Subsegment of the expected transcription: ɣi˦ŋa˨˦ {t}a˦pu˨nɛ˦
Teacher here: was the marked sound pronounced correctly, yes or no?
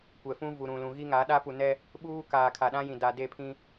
no